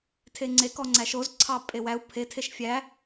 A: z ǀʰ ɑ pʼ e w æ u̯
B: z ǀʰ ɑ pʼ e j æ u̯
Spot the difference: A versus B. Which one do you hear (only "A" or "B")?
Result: A